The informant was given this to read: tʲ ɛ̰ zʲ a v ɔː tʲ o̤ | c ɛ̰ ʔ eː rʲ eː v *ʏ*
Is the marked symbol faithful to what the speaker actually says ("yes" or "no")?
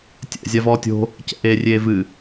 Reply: no